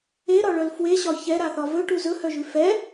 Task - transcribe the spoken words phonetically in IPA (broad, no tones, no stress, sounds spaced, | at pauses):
e ɾ ɒ ɭ œ l f w e ɕ ɒ ç ɛ ɾ a θ ɒ v ɵ ʈ u z ɵ h œ ʒ ʉ f ɛ